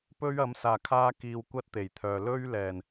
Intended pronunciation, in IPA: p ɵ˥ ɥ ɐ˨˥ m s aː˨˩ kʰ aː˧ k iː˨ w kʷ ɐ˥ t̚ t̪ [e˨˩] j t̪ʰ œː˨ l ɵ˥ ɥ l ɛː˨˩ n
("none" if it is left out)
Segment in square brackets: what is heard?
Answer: e˨˩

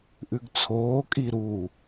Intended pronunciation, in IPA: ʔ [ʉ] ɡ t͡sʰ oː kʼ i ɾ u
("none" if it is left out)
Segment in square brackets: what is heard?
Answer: ʉ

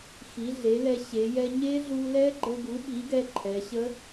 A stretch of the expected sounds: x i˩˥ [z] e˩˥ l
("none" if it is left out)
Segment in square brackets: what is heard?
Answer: ɮ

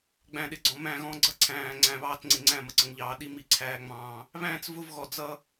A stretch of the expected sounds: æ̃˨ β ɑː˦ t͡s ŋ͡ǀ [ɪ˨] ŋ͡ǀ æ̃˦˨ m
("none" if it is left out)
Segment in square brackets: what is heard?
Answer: ɪ˨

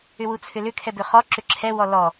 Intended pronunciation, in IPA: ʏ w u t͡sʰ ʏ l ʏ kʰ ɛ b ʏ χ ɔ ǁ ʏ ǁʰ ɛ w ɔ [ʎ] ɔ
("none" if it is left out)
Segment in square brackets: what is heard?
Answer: l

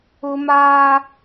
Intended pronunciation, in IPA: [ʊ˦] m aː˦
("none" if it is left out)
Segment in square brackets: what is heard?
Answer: ʊ˦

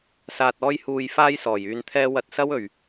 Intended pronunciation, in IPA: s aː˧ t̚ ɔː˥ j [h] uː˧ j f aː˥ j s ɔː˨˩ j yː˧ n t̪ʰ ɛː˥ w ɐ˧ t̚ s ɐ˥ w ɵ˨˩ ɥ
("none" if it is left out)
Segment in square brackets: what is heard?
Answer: h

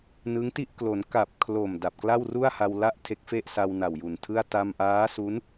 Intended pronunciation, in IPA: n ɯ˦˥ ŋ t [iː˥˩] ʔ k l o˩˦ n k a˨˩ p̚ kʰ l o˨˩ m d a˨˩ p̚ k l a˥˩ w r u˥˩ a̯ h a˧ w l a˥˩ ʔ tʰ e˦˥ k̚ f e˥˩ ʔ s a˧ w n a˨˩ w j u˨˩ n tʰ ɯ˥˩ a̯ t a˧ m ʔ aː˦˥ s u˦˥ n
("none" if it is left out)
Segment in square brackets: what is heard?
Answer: i˥˩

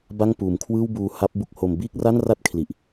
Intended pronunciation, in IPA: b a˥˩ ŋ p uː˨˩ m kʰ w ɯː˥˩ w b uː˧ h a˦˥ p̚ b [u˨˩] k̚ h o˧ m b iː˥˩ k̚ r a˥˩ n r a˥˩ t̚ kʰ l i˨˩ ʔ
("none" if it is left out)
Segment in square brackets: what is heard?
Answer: u˦˥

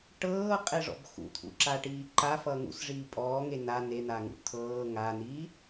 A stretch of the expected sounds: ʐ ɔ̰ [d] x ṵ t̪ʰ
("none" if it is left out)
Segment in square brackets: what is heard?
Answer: b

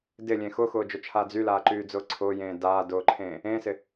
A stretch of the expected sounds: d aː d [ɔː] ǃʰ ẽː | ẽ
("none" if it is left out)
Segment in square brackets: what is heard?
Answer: ʊː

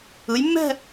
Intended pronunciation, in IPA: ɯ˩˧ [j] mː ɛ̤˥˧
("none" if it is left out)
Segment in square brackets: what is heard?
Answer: j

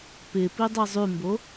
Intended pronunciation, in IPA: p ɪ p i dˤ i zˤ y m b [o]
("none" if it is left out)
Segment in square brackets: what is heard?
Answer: o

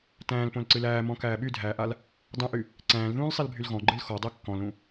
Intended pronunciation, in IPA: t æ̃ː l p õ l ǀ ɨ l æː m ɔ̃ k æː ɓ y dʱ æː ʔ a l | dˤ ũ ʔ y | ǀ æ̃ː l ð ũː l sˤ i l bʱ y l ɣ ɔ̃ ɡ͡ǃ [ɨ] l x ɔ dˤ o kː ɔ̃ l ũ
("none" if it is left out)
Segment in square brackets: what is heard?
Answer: ɨ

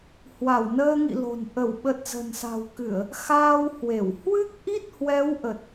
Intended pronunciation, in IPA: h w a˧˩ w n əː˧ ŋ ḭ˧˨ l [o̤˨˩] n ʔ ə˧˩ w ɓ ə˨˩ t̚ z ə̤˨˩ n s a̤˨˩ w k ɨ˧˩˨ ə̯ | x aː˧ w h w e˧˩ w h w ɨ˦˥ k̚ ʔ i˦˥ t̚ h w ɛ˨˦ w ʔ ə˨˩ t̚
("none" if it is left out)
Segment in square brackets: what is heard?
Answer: o̤˨˩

